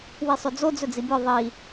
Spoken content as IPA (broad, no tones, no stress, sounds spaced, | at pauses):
w i sˤ ɵ d͡z o d͡z ɵ d͡z i bʲ ɔ ðˤ i